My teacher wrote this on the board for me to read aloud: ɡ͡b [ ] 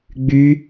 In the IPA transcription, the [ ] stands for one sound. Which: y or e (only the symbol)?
y